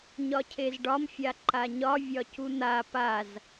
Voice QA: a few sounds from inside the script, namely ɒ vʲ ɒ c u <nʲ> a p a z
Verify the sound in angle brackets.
incorrect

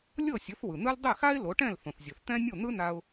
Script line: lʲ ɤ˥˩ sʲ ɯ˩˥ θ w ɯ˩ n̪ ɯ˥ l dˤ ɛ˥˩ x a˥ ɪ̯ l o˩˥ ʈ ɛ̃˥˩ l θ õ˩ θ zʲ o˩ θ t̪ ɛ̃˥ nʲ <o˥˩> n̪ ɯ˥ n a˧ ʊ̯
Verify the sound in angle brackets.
correct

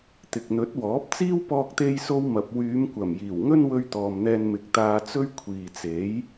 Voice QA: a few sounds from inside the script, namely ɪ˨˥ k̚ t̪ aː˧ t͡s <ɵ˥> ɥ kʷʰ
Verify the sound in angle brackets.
correct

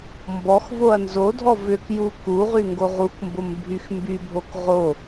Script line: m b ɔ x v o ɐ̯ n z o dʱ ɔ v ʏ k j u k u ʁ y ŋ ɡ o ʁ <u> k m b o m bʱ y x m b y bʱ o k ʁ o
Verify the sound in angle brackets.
correct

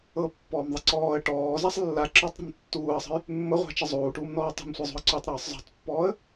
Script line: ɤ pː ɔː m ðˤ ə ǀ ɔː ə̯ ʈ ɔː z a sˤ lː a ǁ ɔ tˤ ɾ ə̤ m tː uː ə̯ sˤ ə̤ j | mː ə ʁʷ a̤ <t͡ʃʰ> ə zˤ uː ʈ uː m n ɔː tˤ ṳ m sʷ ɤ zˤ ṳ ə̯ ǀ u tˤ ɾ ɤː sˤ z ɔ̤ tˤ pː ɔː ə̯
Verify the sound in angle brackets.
incorrect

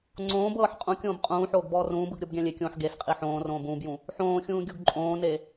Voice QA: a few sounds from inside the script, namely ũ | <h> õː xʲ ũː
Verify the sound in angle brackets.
incorrect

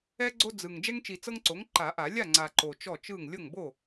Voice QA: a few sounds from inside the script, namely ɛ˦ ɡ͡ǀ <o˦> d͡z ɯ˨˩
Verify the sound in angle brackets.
correct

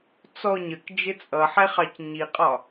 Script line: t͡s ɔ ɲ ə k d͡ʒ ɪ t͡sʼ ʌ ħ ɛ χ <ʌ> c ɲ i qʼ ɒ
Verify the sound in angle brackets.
incorrect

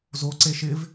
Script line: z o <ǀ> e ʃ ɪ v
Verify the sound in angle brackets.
correct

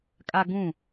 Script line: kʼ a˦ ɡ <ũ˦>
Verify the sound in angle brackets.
incorrect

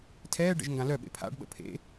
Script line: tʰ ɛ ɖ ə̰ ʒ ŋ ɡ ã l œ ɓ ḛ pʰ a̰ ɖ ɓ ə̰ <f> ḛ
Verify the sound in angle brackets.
incorrect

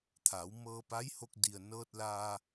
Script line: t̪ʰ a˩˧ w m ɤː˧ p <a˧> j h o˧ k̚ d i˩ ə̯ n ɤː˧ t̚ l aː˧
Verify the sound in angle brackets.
incorrect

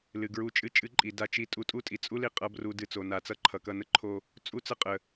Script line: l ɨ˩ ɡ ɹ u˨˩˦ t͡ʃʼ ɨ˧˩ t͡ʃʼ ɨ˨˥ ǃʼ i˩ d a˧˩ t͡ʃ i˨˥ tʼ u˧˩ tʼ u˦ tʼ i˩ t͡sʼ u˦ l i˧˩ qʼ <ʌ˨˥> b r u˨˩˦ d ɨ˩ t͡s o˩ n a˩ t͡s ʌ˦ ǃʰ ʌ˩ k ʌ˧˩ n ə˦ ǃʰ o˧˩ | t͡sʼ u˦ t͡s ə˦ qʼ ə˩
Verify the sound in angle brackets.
correct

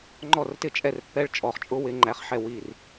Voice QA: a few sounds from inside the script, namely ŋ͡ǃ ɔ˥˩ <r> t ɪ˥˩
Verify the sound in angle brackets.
correct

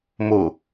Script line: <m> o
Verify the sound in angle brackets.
correct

